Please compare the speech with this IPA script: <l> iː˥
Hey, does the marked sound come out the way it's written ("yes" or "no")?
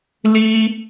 yes